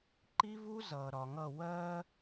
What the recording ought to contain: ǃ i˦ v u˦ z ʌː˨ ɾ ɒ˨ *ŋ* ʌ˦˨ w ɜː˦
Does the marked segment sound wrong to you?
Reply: no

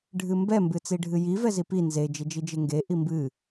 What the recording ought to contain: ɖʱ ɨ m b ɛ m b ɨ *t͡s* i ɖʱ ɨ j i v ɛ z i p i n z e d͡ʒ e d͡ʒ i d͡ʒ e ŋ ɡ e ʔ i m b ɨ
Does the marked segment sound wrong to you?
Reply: no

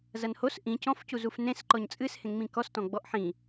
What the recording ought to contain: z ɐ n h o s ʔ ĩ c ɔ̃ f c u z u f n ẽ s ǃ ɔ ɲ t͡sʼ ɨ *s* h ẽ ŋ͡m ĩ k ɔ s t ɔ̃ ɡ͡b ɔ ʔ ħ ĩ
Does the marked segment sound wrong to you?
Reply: no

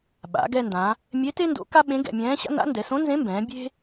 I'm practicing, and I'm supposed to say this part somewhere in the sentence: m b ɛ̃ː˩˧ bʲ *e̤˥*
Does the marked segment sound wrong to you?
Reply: no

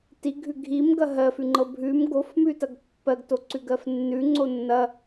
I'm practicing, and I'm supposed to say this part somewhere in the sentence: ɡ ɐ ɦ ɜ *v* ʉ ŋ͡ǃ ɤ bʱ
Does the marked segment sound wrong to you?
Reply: yes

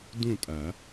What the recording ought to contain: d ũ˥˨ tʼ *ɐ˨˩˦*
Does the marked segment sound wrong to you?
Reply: no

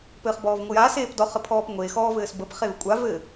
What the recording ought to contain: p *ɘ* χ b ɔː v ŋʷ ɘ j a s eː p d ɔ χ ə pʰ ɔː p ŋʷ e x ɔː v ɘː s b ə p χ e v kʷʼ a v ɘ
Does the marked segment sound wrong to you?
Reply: yes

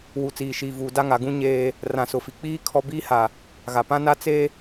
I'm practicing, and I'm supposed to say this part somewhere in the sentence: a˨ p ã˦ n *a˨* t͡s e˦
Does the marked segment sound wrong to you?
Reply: yes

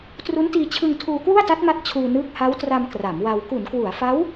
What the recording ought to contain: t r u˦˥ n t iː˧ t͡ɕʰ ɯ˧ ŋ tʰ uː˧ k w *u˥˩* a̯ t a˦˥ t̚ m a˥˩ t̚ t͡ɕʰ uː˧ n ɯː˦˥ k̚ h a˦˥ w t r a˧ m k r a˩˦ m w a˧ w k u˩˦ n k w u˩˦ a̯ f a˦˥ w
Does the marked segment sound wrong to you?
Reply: no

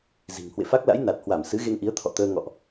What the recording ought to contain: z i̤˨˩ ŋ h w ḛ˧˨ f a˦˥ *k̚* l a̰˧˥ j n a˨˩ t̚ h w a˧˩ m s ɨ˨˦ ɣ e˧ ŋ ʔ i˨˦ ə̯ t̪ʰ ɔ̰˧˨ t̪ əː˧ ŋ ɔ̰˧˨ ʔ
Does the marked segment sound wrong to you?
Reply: no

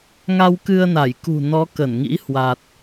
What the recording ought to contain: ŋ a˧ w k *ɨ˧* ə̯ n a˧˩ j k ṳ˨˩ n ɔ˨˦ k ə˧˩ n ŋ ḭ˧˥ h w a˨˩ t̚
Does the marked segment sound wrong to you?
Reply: no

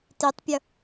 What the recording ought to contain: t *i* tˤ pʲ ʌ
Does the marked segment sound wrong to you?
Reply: no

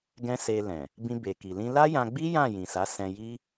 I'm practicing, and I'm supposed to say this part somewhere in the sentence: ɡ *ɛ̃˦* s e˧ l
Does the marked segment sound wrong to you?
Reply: no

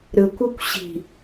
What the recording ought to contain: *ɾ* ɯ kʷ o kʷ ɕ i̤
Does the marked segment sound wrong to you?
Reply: no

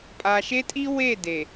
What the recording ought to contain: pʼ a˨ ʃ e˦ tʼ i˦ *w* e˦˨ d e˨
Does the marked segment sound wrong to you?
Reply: no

